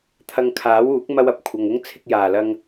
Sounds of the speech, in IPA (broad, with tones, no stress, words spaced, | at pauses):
t̪ʰɐ˧ŋkʰaː˨˥wuː˨˥k̚ mɐ˥wɐ˧p̚ kʷʰɐ˨ŋʊ˥ŋ t͡sʰɪ˧k̚jaː˨˩lɐ˧ŋ